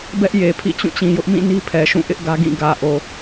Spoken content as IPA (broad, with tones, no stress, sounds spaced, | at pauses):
b ɛ˦ ʔ j e˨ pʰ ḭ˦˨ t͡ɕ ũ˦˨ t͡ɕ ĩ˨ j ʊ˦ ʔ m ĩ˦˨ n i˦ pʰ ɛ˨ ʃ ũ˦˨ ʔ ɪ˦ ʔ ɡ ä˦ ɡ ĩ˦˨ ɡ ä˨ ʔ o˨